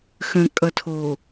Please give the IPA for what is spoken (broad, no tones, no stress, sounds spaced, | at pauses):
x ə̃ kʼ ʌ tʰ o